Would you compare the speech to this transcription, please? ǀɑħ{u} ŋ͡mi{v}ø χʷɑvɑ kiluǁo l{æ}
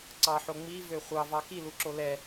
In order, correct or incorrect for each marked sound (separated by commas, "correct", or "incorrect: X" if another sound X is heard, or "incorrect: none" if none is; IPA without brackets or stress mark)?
incorrect: o, correct, incorrect: ɛ